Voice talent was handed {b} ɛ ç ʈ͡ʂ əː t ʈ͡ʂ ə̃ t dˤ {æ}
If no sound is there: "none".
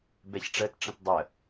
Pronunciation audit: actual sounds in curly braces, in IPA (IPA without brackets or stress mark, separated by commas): b, ə